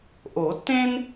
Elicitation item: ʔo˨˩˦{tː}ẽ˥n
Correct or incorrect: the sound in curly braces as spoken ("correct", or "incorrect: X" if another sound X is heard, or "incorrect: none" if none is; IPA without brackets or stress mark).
correct